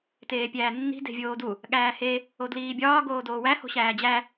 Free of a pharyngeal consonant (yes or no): yes